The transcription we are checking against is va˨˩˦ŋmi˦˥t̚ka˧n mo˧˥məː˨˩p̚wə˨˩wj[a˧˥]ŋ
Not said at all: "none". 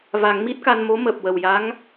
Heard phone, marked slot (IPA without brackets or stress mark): a˧˥